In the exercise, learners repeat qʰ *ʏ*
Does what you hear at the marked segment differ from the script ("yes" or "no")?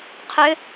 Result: no